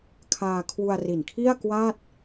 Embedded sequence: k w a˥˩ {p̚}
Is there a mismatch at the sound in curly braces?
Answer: yes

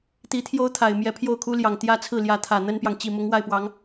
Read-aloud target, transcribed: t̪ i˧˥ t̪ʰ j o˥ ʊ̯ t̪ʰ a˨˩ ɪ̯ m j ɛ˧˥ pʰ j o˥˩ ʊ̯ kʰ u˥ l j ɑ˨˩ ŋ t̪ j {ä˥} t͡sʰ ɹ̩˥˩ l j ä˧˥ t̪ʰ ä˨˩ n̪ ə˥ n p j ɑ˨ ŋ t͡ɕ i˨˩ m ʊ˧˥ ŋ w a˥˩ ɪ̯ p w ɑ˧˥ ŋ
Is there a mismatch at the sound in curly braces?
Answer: no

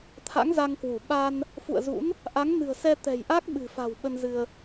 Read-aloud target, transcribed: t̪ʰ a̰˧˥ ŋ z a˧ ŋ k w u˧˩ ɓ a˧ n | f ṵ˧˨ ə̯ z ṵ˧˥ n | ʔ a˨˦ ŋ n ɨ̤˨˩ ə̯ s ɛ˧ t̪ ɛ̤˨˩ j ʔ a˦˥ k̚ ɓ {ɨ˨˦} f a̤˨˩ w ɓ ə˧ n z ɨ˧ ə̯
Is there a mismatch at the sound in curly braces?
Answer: yes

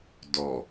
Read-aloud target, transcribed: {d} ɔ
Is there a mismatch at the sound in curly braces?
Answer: no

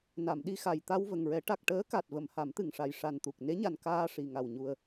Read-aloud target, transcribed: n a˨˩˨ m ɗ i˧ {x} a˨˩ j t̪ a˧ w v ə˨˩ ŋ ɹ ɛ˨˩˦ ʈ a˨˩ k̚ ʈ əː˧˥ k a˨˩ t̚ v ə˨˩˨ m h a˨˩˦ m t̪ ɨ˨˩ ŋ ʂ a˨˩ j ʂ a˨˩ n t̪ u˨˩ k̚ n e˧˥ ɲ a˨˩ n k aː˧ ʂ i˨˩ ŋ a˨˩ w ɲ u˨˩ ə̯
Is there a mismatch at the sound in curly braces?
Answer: no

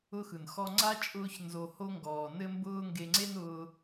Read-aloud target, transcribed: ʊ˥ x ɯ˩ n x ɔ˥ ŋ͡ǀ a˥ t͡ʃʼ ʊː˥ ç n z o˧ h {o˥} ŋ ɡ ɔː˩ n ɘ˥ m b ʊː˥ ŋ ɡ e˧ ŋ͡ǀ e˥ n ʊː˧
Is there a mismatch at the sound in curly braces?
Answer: no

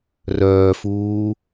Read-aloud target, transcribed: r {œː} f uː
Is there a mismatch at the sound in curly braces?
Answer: no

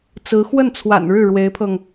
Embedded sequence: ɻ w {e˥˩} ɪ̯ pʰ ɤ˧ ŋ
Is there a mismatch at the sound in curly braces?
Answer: yes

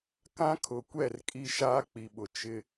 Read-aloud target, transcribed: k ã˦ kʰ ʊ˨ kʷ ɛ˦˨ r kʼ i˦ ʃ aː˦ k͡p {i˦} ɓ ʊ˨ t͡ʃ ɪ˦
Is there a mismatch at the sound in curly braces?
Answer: yes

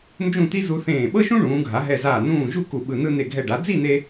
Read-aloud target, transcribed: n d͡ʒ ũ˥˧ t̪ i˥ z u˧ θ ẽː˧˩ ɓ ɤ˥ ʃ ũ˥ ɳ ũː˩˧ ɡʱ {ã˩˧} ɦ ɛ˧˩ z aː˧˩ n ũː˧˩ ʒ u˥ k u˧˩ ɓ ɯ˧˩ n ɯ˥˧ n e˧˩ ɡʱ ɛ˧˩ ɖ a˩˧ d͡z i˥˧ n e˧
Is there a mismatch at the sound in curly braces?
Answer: yes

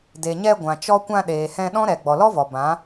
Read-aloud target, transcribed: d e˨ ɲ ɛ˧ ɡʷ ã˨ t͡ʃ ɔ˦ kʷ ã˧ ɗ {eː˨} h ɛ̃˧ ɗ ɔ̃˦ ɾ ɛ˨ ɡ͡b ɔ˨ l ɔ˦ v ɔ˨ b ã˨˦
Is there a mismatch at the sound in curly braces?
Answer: no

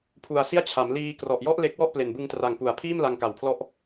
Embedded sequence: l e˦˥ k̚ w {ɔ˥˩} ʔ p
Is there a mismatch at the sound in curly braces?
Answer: no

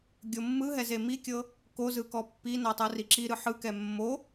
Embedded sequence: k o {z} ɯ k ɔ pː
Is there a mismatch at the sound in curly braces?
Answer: no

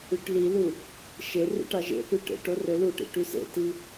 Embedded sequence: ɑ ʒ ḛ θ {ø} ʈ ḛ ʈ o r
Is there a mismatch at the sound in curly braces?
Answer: yes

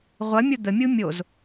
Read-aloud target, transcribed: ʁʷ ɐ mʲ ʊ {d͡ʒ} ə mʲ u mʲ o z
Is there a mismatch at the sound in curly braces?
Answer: yes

